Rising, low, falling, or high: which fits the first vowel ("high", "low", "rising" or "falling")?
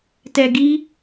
low